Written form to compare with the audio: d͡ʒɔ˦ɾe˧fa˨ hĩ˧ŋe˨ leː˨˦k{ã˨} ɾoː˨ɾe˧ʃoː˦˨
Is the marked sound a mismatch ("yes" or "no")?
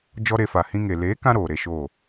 yes